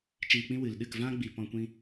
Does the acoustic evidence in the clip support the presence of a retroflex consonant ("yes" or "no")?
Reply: no